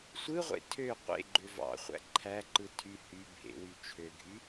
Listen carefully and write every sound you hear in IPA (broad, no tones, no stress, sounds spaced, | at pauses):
sʷ ɯ ʁʷ ḛ tʰ ø qʷ ḛ ɡ͡ǃ ø v ɑ̰ χʷ æ̰ ǃʰ æ ǃ ɯ tʰ y h y bʱ ḛ w y t͡ʃʰ ø ɡʱ y